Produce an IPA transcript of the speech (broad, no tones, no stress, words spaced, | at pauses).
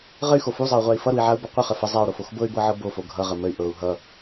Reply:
ʁəy̯xo fuzˤɤu̯ʁʷai̯ fʌɾui̯ʕau̯bʌ qʷəχə fə zˤau̯ɾofox bɤy̯bɤʕɤ bofo ɡʱʌʁə məy̯ ʔɤu̯ ɦʌ